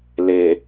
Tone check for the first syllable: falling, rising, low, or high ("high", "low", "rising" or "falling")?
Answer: low